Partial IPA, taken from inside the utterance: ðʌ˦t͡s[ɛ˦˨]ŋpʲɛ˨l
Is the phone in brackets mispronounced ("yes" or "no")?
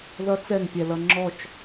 no